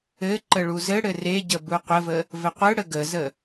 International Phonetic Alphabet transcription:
ɘ ǃəɭuzɘɽɘ reɟə buqʷəvə | vɘqʷɯɽə ɡəzə

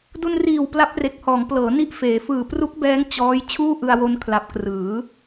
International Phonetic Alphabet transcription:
du˧nriː˨˩w pla˦˥p̚ re˨˩k̚hɔː˩˦ŋplɤː˩˦ ni˥˩ʔfeː˩˦ fɯː˨˩pru˦˥k̚bɛː˦˥ŋ t͡ɕɔː˦˥j t͡ɕʰuː˥˩ʔɯ˧a̯wo˧n kʰla˨˩p̚krɯː˩˦

